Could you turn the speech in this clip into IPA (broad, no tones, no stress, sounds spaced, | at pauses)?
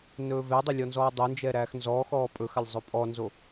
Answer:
n ɵː v ɛ dˤ ɵ lʲ ɔ n z ɔː dˤ o n d͡ʒ ɛ ɾ æː x n z ɔː x ɔː pʼ ɵ x a lʲ zˤ ɵ pʼ ɔ n z o